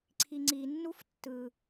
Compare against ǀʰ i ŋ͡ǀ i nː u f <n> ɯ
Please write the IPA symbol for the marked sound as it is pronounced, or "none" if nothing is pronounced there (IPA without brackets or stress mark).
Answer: tː